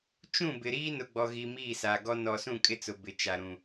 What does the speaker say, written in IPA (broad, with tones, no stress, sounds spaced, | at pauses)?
t͡ʃ ũ˦˨ b ɪ˨ ɾ iː˦ n ʊ˨ ɡ͡b ɔ˨ ɣ i˨ m iː˦˨ s aː˨ ɡ ɔ˦ n ɔ˨ s ũ˦˨ kʼ ɪ˦ t͡s ʊ˨ b ɪ˨ t͡ʃ a˨ ɾ ũ˨